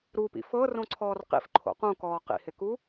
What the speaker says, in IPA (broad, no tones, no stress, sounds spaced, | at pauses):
ɾ u p ḭ f ɤ r õ ǀʰ ɔː r q ḭ f ǃʰ o̰ q ũ k ɔː q ḭ h ɪ k u